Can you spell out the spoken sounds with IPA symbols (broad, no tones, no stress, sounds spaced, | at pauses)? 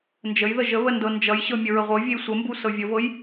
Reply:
n d͡ʒ ə j ð ə ʒ ə β ə n d ɤ n d͡ʒ ʌ j ɕ ɤ mʲ ə ɹ ə ʁʷ ɤ vʲ e j sʷ ə m b u s ɤ vʲ ə v ɤ j